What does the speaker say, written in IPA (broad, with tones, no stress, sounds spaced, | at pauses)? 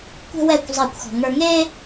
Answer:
kʷ ɛ̤˥ w ɛː˥˨ kʷ zˤ eː˥˨ kʷ x ɔ̤˧ ŋ ə˞˥ ŋ eː˥